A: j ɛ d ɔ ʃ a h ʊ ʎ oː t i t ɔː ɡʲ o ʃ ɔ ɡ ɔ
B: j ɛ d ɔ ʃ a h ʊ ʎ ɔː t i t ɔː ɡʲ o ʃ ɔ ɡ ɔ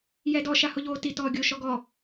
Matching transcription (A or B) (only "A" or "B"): A